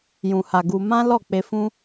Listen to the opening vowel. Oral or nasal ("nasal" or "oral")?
nasal